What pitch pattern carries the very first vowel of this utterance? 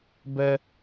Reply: high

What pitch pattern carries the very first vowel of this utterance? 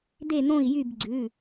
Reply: falling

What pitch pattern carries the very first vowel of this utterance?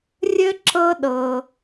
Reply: high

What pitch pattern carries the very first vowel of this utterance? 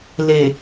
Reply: low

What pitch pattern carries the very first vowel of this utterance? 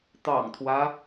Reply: low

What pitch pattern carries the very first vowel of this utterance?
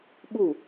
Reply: falling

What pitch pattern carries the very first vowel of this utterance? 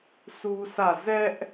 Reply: high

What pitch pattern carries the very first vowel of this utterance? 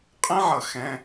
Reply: high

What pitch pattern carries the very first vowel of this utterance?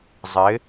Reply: rising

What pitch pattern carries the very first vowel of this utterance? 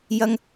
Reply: high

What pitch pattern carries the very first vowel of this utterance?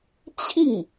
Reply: falling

